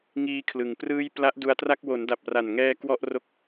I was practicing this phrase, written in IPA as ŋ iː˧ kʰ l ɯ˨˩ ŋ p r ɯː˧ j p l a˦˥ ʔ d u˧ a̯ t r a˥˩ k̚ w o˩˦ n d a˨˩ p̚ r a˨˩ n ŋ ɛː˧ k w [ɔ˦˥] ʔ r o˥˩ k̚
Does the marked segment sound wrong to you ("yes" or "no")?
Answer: yes